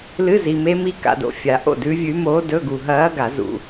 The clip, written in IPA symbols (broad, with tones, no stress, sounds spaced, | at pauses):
l ɨ˧˥˧ z i˨ m e˧˥ m i˧˥ k a̰˨ d o̰˨ fʲ a˨˩˦ ʔ o̰˥˩ d ʉ˧˥ vʲ ʉ˧˥ m oː˧˥ d ɵ˧˥˧ ɡ u˨ ɦ ɐː˧˥ ɡ a˨˩˦ z ṵ˨